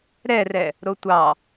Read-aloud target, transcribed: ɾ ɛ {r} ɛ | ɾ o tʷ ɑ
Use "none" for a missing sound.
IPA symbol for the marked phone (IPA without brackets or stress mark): r